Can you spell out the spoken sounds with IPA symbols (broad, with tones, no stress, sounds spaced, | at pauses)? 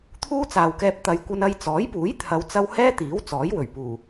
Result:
t̪ʰ uː˥ t͡s aː˨ w k ɛː˧ p̚ t̪ ɐ˨˧ j kʷ ɐ˧ n ɐ˧ j t͡s ɔː˨˥ j p uː˨˥ j t̪ʰ ɐ˨˧ w t͡s ɐ˧ w h ɛː˥ t̪ iː˨˥ w t͡s ɔː˨˥ j w ɵ˨˩ ɥ p uː˨˩